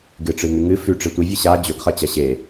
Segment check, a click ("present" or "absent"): absent